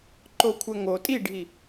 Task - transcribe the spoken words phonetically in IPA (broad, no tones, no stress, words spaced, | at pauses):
ǃokʷʰɛŋo tʼiɖʱi